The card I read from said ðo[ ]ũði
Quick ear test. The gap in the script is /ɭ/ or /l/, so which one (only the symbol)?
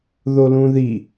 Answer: l